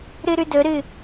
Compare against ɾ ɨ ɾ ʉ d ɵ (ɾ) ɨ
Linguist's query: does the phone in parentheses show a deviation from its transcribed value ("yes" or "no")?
no